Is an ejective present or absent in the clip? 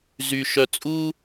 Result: present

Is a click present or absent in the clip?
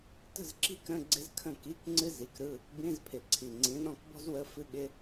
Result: present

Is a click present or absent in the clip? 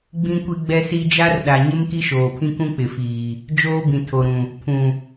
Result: absent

